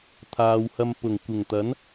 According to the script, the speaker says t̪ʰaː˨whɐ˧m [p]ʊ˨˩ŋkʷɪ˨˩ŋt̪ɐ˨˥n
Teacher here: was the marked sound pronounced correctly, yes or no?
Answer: yes